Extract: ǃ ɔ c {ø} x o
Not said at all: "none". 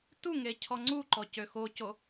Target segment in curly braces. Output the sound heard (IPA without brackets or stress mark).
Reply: ø